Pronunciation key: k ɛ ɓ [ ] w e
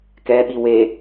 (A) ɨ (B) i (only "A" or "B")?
B